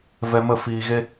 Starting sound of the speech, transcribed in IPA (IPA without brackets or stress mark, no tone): v